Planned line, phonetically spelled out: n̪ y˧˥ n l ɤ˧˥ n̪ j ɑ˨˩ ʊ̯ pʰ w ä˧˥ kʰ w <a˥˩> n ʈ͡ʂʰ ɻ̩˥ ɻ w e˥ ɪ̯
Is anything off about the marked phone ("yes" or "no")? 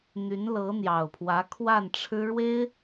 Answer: no